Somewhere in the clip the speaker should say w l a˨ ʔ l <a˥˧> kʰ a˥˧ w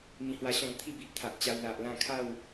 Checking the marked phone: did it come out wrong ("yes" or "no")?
yes